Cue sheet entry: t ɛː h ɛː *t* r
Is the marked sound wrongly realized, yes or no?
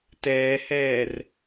yes